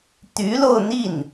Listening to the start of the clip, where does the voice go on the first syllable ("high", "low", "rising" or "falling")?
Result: rising